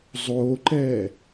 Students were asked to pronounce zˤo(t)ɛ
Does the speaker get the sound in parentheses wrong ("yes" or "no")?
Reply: yes